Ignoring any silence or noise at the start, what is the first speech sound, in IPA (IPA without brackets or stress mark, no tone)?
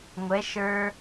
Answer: ŋʷ